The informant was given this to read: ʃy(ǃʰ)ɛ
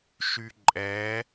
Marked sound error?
yes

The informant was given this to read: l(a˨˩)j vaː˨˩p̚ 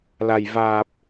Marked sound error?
no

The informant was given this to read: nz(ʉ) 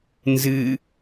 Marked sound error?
yes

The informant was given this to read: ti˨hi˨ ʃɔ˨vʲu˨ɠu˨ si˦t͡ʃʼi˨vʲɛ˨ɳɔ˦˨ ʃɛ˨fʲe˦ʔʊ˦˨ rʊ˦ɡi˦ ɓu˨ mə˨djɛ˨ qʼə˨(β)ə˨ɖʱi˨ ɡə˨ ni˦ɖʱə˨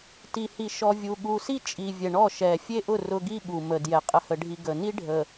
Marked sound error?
yes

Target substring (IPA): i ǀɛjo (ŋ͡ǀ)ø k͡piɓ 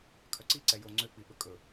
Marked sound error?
no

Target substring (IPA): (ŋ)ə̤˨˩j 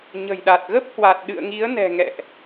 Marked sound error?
yes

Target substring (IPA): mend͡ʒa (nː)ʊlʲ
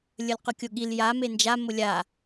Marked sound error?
yes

